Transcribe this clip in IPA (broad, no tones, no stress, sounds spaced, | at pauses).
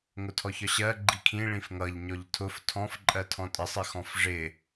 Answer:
ŋ ʊ tʰ ɔ ç ɒ ɕ ɜ ɡ͡ǃ i kʰ ĩ ɭ ĩ f ŋ ʌ ʎ ɲ ɔ ʎ tʰ ʊ f tʰ ɔ̃ f ǃʼ ɜ tʰ ɔ̃ tʼ ɪ sˤ ɪ x ɔ̃ f ʐ ɪ